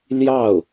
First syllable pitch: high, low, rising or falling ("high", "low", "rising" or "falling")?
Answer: falling